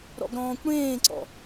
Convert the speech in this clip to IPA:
ɾ ɔ̰ ɡ ɾ ɔ̃ː kʷ ɽ ẽː ǀ ɔ̰

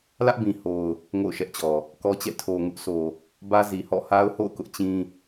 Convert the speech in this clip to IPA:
l ä˦ ʔ b ĩ˨ h o˨ ʊ̯ | ŋ o̰˦˨ ʊ̯ ʃ ɛ˦ ʔ t͡ɕ ɔ˨ | k ɔ˦ t͡ɕ ɛ̰˦˨ tʰ o˨ ŋ ʊ˦ ʔ s o˨ | b ä˦ z i˨ h ɔ̰˦˨ h a˦ ʊ̯ h o̰˦˨ ʊ̯ k ʊ˦ ʔ t͡ɕ ĩ˦

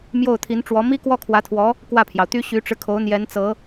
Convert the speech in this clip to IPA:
m j o˥˩ ʊ̯ t̪ʰ i˧˥ n ʈ͡ʂ w ɔ˧˥ m i˥ k w ɔ˥ kʰ w ä˧˥ t̪ʰ w ɔ˧˥ | k w ä˥˩ pʰ j ɑ˩ ʊ̯ t̪ y˥ ɕ y˧˥ ʈ͡ʂ ɻ̩˧ kʰ o˧˥ ʊ̯ n̪ j ɛ˧˥ n t͡s ɤ˧˥

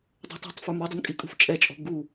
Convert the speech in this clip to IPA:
dˤ ɛ̤ tˤ ɔ̤ tˤ f ə˞ m ɔ dˤ u n kʼ i kʼ ṳ f t͡ʃʼ ɛ t͡ʃʼ ɔ̤ ɡ u

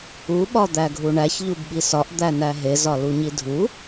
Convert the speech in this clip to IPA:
u ɓ ɒ d̪ æ ɡʱ u ɳ æ ç ʎ u b ɓ i s ɒ ʔ d̪ æ n æ ɦ e z ɒ l u ɲ i dʱ u

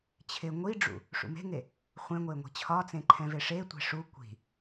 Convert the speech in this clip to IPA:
t͡ɕʰ ɪ ŋʷ i ɖ͡ʐ ṵ | ʂ ṵ m e̤ ŋ e | χʷ ẽ ŋʷ e ŋʷ i̤ t͡ɕʰ ɒ t͡s ẽ ǃʰ ɛ̃ v e ʂ e tʷ e̤ ʂ u kʷ i̤

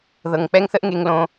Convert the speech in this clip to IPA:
ð ɤ˨ ŋ k͡p ɛ˦ ŋ θ ə˦ ʔ ŋ e˦ ŋ l õ˦

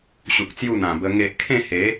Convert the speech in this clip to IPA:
ɕ u˨ k̚ t͡s j u˥˧ n̪ ã˨˩ b ə˧ ŋ e˨ ʔ kʰ ẽ˥˧ h e˨˦

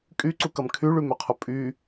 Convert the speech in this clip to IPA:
kʼ y ǀ u k ɐ m kʰ y ɭ y m ø qʰ ʊ pʼ y

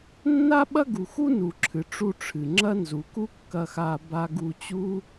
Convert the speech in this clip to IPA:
nː a˥ ɓ ɐ˥ ɡ u˩ x u˥ n u˩ ǁʰ ɨ˩ ʈ͡ʂ u˧ ʈ͡ʂʰ ɨ˩ ŋ͡ǁ ɐ˥ n z u˩ k u˥ kː ɐ˧ x a˧ b a˧ ɡ u˧ t͡ɕ u˥

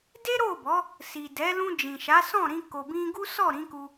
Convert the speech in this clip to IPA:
d e˦ ɾ o˦˨ b ɔ˨˦ | s i˨ d ɛ˨˦ l ũ˧ d͡ʒ ĩ˨ ʃ a˨˦ s ɔ̃˦˨ ɾ ĩ˧ k o˨ b ĩ˧ ɡ u˦ s ɔ˦˨ ɾ ĩ˨˦ k u˧

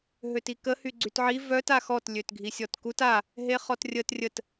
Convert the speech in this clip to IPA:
ɦ ø t i k ə h y ɡ͡ǀ y t ʕ i v œ t a x ɔ t lʲ ø t ɡʱ i sʲ ɔ t k u t a | ɦ e χ ɔ t rʲ ə t rʲ ə t

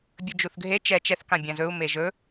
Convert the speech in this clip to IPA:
bʲ ɵ d͡ʒ u θ ɡʱ e t͡ʃ ɛ t͡ʃ ɛ θ k ã bʲ ã z ɵ u̯ m e ʒ ɵ

